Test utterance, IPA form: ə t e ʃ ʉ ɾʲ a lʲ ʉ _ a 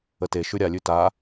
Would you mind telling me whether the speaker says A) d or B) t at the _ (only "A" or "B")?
B